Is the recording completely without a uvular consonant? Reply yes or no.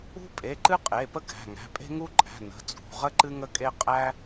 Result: no